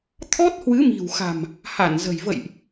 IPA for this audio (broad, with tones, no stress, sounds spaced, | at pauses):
t̪ʰ ɔ˦˥ t̚ h w ɨ˨˦ m i̤˨˩ w x a̤˨˩ m | h a˧˩ n z ə̤˨˩ j v ə̰˧˨ j ʔ